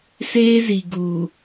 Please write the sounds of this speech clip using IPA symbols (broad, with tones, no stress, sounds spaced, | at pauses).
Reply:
s eː˦ z i˨ ɡ u˨